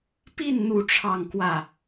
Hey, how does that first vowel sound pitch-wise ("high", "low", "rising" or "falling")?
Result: falling